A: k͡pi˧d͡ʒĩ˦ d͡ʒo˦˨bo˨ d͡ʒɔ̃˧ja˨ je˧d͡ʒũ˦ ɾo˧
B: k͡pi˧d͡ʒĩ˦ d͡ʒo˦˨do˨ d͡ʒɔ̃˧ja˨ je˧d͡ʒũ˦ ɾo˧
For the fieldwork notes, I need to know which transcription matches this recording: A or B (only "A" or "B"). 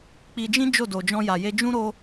B